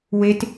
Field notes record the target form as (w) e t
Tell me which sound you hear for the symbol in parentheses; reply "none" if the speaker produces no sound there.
w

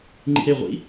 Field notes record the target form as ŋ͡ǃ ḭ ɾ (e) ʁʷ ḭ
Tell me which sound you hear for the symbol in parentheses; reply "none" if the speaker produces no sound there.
e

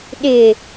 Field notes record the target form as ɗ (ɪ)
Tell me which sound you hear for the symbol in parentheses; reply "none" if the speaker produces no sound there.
ɪ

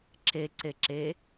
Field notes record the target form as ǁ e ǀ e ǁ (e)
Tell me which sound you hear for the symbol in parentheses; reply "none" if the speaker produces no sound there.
e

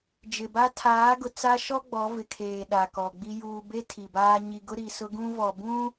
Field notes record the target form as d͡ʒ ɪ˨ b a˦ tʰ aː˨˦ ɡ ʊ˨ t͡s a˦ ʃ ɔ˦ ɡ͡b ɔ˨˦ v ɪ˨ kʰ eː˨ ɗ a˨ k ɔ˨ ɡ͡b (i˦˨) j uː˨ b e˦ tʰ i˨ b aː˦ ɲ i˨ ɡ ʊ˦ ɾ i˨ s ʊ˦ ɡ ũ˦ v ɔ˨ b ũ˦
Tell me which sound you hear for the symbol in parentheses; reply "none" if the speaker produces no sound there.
i˦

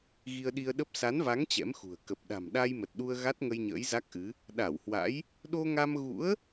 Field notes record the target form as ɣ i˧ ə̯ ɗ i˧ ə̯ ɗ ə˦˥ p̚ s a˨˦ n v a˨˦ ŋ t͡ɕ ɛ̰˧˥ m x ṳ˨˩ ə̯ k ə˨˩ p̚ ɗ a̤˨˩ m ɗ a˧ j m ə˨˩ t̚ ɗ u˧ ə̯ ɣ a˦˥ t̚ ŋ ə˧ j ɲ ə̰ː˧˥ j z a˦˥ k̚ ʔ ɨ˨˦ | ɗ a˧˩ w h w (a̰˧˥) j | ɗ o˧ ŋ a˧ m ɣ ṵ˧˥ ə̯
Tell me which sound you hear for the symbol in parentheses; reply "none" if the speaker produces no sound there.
a̰˧˥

